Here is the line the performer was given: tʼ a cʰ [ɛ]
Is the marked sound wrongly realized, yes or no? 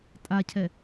no